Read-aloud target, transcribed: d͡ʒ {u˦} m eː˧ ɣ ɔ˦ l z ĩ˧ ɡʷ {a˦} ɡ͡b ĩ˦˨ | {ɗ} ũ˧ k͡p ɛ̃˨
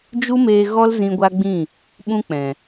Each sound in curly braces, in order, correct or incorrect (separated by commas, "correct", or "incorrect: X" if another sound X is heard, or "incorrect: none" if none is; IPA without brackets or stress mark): correct, correct, incorrect: ɓ